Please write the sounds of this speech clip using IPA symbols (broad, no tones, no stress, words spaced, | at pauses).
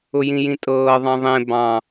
ʊjĩjĩtʼɤː ðˤɑ̃ðˤẽ bɑ̃